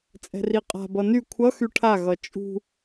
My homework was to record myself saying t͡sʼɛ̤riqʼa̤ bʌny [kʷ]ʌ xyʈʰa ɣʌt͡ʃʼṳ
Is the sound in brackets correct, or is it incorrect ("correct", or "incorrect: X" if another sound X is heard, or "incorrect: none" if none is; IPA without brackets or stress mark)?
incorrect: kʷʰ